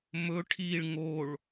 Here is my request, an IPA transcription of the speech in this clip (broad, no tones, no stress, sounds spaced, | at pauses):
m ɵ ʈʰ i ɭ ŋ o ɭ